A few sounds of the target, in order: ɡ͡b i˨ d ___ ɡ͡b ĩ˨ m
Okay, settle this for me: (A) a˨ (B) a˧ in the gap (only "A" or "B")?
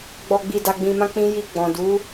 A